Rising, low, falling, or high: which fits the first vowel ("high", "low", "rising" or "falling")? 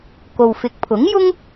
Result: low